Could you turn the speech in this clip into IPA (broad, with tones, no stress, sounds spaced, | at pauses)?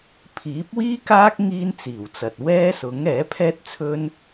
pʰ iː˨˥ p̚ w iː˥ k aː˥ k̚ ŋ iː˥ n t͡s iː˨˩ w t͡s ɐ˨ t̚ w ɛː˥ s ʊ˨˥ ŋ ɛː˨˥ pʰ ɛː˥ t̚ t͡sʰ ɵ˥ n